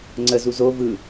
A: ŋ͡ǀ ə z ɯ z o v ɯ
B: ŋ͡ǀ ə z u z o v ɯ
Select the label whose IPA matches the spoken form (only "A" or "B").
B